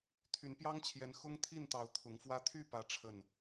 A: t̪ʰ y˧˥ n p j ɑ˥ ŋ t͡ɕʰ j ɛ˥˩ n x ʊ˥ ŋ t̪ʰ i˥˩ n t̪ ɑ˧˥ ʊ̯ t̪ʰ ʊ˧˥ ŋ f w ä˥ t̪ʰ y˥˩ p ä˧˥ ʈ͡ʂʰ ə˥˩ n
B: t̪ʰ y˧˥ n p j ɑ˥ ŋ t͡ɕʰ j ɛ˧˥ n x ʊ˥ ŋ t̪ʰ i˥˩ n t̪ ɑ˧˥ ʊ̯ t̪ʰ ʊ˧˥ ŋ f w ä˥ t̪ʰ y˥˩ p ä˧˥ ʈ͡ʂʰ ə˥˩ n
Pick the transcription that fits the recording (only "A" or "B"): B